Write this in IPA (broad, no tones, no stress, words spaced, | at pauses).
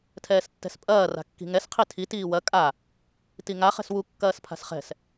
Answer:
tʰɛːstːɛ̤spʼɐː ra̤kːi̤ŋɛs qʰitʰi tiːwɐ kʼa | tiŋa χɛ̤swu kːɐːspʰa̤sχɛ̤s